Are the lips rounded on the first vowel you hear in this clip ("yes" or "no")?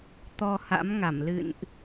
yes